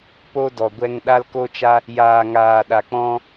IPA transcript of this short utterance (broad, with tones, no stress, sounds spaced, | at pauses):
p o˧ d ɔ˨ ɡʷ ɛ˧ ŋ ɗ a˧ l k o˧ t͡ʃ a˧ | j aː˨ ŋ aː˨ ɗ a˨ k͡p ɔ̃˧